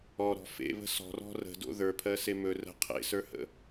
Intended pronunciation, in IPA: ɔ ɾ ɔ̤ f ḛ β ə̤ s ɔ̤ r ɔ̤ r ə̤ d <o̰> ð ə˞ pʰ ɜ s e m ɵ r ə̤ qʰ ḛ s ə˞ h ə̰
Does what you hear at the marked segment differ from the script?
no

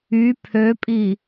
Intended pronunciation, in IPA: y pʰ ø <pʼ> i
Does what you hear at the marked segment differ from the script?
no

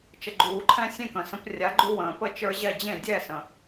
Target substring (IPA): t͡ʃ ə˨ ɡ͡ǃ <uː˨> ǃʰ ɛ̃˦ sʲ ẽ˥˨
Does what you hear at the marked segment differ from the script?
no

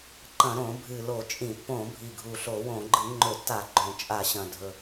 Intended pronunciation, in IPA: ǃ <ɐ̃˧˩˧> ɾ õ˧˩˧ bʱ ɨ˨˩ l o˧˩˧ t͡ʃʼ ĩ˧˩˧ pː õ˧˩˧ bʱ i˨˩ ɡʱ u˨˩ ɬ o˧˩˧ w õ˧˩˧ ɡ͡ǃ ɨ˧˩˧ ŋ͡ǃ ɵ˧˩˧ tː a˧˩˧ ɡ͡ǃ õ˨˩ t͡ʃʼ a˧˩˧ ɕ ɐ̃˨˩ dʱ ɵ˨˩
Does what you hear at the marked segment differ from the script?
no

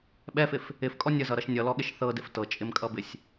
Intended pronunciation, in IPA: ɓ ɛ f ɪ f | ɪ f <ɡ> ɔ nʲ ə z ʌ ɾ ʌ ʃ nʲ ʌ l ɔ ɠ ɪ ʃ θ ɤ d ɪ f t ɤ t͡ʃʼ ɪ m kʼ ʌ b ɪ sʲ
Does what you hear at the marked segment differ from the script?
yes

